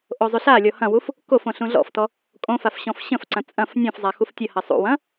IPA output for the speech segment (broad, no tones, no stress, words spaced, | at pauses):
ʔozˤyɬalʲɔ hɐ̃wuf | kof õɬũɮɔ̰ftɔ | kʼõfaf ɕɔ̃fɕə̃fǀɐ̃ t͡sʼɐ̃f nʲõfzˤa xuftʲəhɐ sˤṵwɐ̃